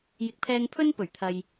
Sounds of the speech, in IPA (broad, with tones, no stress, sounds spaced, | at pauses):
j ɪ˨ k̚ pʰ ɛː˧ ŋ pʰ ɵ˥ n p ɵ˨˩ ɥ t̪ʰ ɐ˨ j